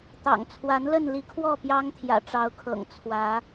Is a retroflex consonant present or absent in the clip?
present